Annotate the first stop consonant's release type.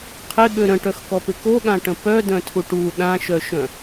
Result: aspirated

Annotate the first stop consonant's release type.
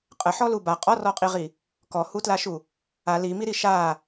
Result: ejective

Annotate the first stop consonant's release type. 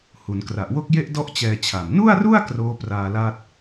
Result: plain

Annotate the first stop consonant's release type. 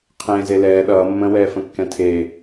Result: aspirated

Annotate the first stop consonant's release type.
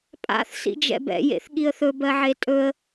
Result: ejective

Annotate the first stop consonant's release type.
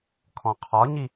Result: aspirated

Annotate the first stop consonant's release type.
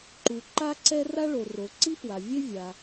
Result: click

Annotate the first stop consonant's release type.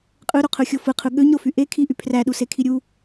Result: ejective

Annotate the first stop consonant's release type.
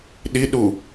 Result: implosive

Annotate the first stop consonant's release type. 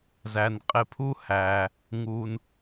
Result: ejective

